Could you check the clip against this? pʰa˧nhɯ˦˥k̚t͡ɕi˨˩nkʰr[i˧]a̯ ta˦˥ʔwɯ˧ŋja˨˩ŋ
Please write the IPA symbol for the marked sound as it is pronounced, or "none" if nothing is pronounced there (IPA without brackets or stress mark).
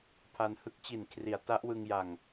i˩˦